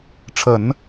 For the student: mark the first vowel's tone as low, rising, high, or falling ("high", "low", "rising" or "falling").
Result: low